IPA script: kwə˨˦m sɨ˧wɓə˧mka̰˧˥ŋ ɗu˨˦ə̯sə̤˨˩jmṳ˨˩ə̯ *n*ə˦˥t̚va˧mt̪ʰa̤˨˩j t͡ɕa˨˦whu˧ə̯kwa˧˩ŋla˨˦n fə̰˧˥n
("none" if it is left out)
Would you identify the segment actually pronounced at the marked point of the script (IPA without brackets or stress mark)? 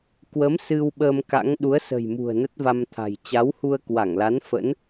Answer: n